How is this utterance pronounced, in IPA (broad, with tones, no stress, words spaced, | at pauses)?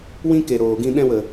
wĩ˦ke˨ɾoː˨ɡĩ˧ ɗɛ̃˧wə˨